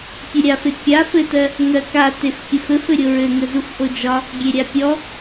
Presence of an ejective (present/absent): absent